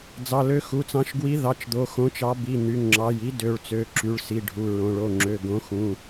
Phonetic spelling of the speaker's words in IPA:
d͡z ɑ˩˧˩ l ø˨˥ x u˩˧˩ t͡s ɑ̃˨˥ ʃ ɡ w i˨˥ ð ɑ˩˧˩ t͡ʃ d̪ o˩˧˩ x õ˨˥ t͡ʃ ɑ˨˥ b i˩˧˩ n̪ y˩˧˩ ŋ ŋ͡ǁ ɑ˩˧˩ j i˨˥ d ø˩˧˩ ɭ t͡s ø˩˧˩ ǁ y˩˧˩ ɭ s i˩˧˩ ɖʱ u˩˧˩ ɹ õ˩˧˩ ɭ o˩˧˩ ŋ͡ǁ ø˩˧˩ ɡ õ˨˥ x ũ˩˧˩

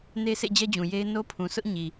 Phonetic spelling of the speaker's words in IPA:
n e˦ s ḛ˦˨ d͡ʑ ɛ˦ d͡ʑ ũ˨ j e˦ ɪ̯ n o˦ pʰ ũ˨ s ʊ˦ ʔ ɲ i˨

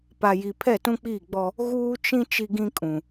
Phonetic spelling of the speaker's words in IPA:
p a˨ j i˨ pʰ ɛ˦˨ t ũ˦ k͡p iː˦˨ ɡ͡b ɔ˦ | ɣ uː˦ t͡ʃ ĩ˦ t͡ʃ i˦ ɡ ĩ˦ kʼ ũ˨

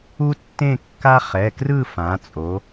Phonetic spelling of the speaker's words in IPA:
u˥ tː ẽ˥˧ kː a˥ χ ɛ˩˧˩ k r ɯ˥˧ f ã˩˧ t͡sʼ o˩˧

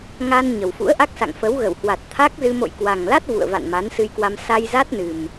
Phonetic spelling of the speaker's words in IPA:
ŋ a˧ n ɲ ə˨˩ w f ṵ˧˥ ə̯ ʔ a˦˥ k̚ s a̰˧˨ ŋ f ə˨˦ w ɣ ə˧˩ w h w a˨˩ t̚ t̪ʰ a˦˥ k̚ z ɨ˧ m o̰˧˨ j k w a˨˩ ŋ l a˦˥ t̚ v ṵ˧˨ ə̯ v a̰˧˨ n m a˨˦ n s ɨ˧ j k w a˧ m s a˧ j z a˦˥ t̚ n ɨ˨˩ m

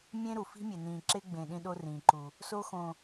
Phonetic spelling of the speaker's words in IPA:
mʲ ẽ˦ ɾ u˨ f i̤˦ mʲ e˨ n ĩː˨ ǁ e˦ ɡ͡b ẽ˨ ɗ ĩ˦ ɗ o˦ r ĩː˨ ǃ u˨ | s o˦ x õ˨

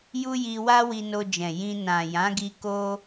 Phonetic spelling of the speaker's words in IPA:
j u˦ j i˧ w a˦ w i˧ n o˧ d͡ʒ ɛ̃˨ j ĩ˧ n ã˨ j ã˨˦ ɡ i˧ k o˦

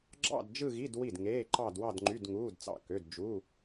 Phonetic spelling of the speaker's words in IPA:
ɡ͡ǁ ɑ̰˥˧ d d͡ʒ ɯ˥˧ ɣ i˧˥˧ d w i˥˩ d ŋ eː˧˥˧ ǃ ɑ˥˧ d w ɑ˥˧ d ŋ͡ǃ y˧˥˧ d ŋ uː˧˥˧ d t͡s ɑ̰˥˩ k ø˧˥˧ d d͡ʒ u˧˥˧

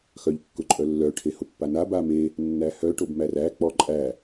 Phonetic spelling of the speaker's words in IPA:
x œ ʎ kː ʊ ǃʼ œ lː œ ʈʰ e h ʊ pː a n a b a m e | nː æ h œ ʈ o b m æ r æ k͡p ɔ ǃʼ æ

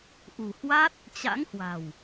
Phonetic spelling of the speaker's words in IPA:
ʔ ṳ˨˩ h w a˦˥ t̚ | t͡ɕ a̰˧˥ ŋ h w a̤˨˩ w

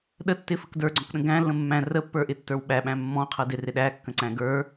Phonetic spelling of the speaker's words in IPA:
ɗ ə tː ɪ f ə k d ə˞ ɡ͡ǀ ɔ̃ k ɗ ə̃ ɡ æ̃ lː ə̃ mː æ̃ r ə pː ə˞ ʔ ɪ tː ə˞ w ɓ æ ɓ æ̃ mː ɔ̃ qʰ ʌ d ɪ r ɪ ɗ æ kː ə̃ ǀ æ̃ ɡ ə˞

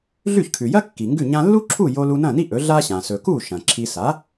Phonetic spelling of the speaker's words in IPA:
ɮ ʉ˥˩ ç kʰ ʉ˩ j ɐ˥ kː i˩ ŋ ɡ ʉ˥˩ ɲ ã˧ lː u˥ ǁʰ u˥˩ j o˧ l u˧ n ɐ̃˥˩ n i˥ ʔ ɵ˩˥ ɮ a˥ ɕ ã˩ s ɵ˩ k u˥˩ ʃ ɐ̃˩ ǁʰ i˧ s a˩˥

